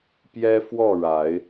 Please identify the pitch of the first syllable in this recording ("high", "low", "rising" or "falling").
high